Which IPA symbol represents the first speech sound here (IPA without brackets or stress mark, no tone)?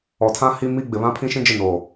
ɔ